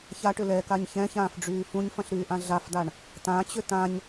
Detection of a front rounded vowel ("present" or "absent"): present